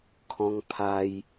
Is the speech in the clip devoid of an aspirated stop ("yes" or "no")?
no